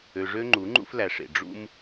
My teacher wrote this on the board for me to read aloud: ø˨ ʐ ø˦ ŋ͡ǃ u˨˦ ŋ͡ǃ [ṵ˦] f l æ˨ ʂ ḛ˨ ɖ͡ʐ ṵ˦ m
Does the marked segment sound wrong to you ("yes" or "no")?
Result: no